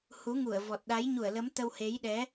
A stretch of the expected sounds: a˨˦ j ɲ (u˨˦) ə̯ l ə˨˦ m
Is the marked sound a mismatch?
yes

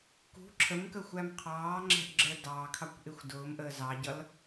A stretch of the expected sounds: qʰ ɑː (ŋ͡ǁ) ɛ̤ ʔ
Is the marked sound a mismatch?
no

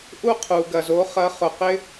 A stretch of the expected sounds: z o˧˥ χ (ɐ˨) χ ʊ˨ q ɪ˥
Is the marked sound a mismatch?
yes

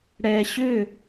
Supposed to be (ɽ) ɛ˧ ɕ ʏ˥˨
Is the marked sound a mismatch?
no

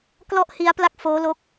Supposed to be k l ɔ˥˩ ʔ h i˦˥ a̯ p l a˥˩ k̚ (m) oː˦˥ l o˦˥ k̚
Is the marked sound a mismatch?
yes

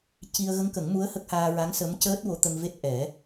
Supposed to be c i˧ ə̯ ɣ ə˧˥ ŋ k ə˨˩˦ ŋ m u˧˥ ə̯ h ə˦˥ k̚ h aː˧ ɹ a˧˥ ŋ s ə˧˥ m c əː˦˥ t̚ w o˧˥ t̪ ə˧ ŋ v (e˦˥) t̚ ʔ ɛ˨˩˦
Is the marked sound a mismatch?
no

